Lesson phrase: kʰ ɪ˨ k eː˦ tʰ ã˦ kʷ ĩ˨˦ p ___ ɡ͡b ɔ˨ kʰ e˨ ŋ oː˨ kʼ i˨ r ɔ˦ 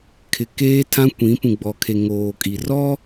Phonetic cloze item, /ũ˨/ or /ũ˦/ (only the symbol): ũ˨